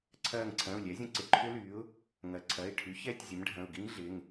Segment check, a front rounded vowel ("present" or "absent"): present